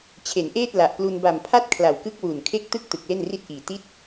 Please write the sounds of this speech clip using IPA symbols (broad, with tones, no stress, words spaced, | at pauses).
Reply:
t͡ɕʰe˩˦nʔeː˥˩t̚la˨˩ʔplu˧n ba˨˩m pʰa˥˩t̚kʰla˨˩wkɯ˦˥k̚ wu˨˩nkʰe˥˩k̚ tɯ˥˩k̚tɯ˨˩k̚ le˥˩nri˥˩t̚ʔiː˨˩ ti˦˥t̚